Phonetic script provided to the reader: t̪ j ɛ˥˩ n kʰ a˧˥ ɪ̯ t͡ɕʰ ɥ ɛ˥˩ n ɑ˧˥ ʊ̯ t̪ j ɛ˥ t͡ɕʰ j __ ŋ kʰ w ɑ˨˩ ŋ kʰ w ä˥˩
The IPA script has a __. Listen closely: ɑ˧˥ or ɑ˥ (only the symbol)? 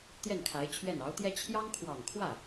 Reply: ɑ˥